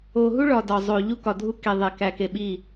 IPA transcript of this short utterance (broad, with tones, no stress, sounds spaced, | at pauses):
o˨ ɦ u˦ ɭ ɒ˨ d ɒ˨ zˤ o˨ ʎ u˦ k ɒ˨ dʱ u˦ k e˨ ðˤ e˨ k æ˨ k e˨ ɓ i˦˨